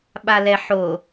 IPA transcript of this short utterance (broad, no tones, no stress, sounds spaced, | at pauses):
ɓ a l ɛ ħ o